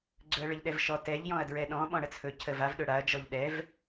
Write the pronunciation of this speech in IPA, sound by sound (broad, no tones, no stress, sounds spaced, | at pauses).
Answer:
ɡ͡ǀ ɵ ɐ̯ ɭ ə ʎ ɗ ɛ v ʃ ɔ t ɛ ʎ j ɔ̃ ɐ̯ d ɹ ɛ ɗ ɔ̃ ɓ ɔ̃ ɽ ə t͡sʰ ɵ cʰ ə v a v ɗ ɵ ɽ a ɐ̯ d͡ʒ ɔ ʎ ɗ ɛ v